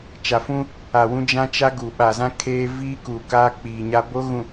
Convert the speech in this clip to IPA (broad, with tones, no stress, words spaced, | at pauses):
t͡ʃa˨fũ˦ | a˨wũ˦ d͡ʒã˦t͡ʃa˦ ɡu˨ ɓa˨zã˦ kʰeː˦ viː˦kuː˨kaː˦ k͡piː˨ɲa˦ bo˦ɣũ˨